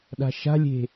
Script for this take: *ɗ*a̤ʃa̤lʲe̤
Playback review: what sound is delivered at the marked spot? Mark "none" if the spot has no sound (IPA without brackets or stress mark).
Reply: ɗ